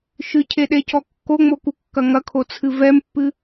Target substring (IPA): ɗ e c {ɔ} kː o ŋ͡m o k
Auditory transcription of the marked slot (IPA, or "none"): ɔ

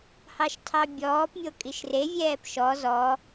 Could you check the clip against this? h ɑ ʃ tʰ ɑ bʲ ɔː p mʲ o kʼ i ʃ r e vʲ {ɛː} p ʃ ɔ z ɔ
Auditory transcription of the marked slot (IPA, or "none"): ɛː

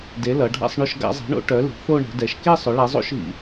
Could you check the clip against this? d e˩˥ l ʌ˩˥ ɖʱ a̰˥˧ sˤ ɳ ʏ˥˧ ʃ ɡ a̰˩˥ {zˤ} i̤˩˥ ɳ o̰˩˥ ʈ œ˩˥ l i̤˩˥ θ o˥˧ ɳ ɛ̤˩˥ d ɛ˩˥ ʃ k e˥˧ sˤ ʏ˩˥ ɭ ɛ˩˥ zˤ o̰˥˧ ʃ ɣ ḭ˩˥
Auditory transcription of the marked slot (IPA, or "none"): zˤ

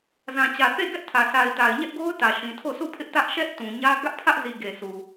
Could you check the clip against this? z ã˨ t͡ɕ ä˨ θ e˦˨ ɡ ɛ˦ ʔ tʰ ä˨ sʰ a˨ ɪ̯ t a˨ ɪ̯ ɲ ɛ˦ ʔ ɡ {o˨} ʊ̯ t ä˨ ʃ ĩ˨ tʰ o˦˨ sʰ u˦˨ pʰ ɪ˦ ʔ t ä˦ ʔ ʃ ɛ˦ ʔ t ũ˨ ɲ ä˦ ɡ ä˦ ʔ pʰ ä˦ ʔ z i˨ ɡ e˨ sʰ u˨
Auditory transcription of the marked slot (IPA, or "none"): o˦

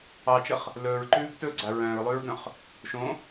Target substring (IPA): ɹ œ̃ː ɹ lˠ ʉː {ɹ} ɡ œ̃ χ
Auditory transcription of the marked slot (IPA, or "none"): ɹ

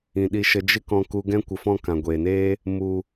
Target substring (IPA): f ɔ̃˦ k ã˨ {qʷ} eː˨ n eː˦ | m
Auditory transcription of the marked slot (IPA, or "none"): ɡʷ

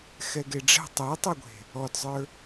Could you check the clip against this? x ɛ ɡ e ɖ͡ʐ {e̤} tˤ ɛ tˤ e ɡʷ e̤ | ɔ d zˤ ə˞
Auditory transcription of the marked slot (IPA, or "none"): ɛ̤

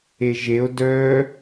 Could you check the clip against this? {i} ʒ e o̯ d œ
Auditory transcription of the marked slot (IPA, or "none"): e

